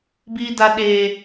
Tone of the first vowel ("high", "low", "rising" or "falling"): high